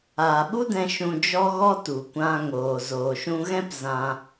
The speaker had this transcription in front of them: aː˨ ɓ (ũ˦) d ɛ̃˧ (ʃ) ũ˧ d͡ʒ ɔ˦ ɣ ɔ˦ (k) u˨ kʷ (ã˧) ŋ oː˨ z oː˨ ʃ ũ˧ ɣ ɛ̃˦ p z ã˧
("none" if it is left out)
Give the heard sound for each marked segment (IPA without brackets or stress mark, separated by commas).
u˦, ʃ, t, ã˧